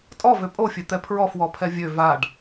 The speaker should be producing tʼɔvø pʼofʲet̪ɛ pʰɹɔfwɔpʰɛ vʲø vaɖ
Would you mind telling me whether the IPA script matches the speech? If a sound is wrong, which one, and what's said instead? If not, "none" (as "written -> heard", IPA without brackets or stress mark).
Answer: none